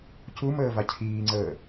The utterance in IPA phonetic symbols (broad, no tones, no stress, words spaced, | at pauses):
cuməː vacʰiːŋ͡ǀəː